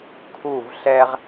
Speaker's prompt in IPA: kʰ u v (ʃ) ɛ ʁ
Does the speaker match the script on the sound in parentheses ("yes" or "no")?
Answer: no